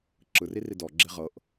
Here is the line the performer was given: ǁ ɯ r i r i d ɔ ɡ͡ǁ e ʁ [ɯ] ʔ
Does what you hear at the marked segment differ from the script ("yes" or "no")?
yes